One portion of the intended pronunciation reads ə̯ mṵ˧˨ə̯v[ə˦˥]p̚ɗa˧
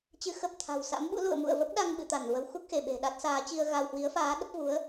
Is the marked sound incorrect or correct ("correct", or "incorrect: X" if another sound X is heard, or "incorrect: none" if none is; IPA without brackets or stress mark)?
correct